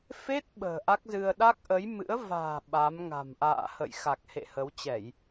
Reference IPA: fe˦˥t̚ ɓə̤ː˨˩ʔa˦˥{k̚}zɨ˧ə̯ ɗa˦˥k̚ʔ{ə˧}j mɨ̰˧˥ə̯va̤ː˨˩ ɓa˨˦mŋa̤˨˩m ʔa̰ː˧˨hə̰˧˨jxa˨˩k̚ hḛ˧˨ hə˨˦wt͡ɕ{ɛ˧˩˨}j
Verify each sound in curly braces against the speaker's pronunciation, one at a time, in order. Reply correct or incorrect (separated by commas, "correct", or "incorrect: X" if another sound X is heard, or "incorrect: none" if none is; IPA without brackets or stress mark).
correct, incorrect: ə˨˦, correct